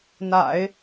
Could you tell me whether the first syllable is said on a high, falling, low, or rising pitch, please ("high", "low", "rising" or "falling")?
low